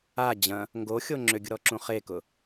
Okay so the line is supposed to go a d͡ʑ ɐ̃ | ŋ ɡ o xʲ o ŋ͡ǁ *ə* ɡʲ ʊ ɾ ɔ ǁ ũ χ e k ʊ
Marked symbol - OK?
no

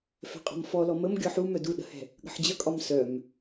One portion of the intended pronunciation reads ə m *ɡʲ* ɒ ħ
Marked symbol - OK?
yes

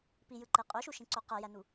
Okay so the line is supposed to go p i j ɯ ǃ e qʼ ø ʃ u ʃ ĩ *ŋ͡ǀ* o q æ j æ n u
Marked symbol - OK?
no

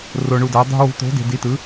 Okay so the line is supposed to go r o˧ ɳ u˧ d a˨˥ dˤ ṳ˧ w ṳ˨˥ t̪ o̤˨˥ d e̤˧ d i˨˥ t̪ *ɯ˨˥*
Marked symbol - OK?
yes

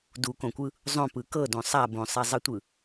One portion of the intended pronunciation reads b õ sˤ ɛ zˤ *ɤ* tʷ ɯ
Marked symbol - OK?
no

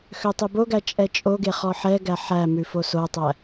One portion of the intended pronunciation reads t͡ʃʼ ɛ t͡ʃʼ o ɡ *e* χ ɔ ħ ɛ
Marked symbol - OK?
yes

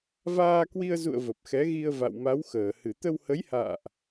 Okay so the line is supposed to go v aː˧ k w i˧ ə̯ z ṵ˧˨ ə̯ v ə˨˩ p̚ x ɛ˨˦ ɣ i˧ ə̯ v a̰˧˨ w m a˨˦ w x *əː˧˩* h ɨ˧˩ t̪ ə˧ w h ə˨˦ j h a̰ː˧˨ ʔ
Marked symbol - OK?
yes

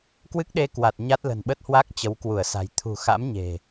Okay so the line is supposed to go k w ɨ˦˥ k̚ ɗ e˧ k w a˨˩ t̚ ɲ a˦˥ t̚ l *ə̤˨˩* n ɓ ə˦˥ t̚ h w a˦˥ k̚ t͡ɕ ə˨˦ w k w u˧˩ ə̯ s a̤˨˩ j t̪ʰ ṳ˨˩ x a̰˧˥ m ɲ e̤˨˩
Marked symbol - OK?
yes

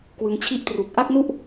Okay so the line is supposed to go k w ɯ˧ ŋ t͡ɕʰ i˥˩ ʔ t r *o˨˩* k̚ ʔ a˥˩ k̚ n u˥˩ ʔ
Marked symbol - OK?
no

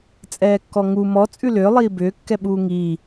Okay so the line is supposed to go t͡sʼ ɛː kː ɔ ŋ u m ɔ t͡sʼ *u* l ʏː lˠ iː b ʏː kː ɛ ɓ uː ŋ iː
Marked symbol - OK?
no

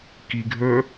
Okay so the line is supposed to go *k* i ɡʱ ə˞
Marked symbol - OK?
yes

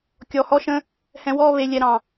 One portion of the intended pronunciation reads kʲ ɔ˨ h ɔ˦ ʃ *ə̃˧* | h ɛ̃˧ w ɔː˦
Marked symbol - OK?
yes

